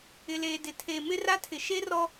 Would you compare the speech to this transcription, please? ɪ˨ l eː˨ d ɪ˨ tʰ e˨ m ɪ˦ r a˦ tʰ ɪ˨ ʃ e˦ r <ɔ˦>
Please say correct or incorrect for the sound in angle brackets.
correct